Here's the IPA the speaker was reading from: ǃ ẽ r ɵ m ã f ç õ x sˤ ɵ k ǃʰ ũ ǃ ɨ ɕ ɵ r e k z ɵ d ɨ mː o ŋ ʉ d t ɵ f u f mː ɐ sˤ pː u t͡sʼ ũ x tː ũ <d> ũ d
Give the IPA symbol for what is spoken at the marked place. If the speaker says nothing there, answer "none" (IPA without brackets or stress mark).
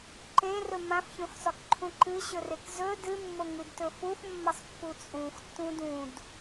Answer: d